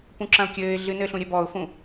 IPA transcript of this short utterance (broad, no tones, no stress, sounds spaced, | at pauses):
p ũ ǁ ɐ̃ ʊ̯ kʲ ɘː ɪ̯ ɮ ɨ n ɘː ɬ ũ ɾʲ ɛ b ɔ ʊ̯ f ũ